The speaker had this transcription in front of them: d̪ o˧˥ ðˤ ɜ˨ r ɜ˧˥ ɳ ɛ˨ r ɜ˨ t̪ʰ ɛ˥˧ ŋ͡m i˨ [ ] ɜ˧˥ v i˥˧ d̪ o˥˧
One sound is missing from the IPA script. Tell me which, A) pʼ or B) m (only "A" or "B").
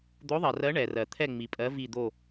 A